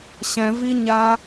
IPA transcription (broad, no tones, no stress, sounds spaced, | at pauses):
ɕ ɛ̃ v i ɲ a